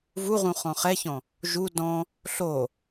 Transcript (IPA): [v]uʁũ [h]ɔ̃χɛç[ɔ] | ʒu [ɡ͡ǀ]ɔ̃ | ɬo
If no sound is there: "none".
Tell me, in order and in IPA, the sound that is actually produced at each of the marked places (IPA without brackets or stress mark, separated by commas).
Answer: v, χ, ɔ̃, d